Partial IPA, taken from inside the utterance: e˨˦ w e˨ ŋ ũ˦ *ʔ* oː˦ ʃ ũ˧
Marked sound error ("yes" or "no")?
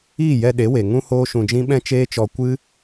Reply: yes